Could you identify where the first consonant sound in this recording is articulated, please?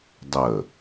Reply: alveolar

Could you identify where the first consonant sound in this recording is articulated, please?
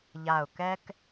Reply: palatal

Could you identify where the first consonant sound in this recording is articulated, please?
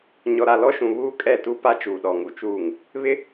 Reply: palatal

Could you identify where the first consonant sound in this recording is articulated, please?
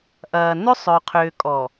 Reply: glottal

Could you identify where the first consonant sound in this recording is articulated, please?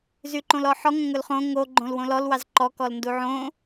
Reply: alveolar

